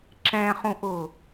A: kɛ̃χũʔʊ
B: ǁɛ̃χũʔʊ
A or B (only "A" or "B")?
B